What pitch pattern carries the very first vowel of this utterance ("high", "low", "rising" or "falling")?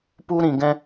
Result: high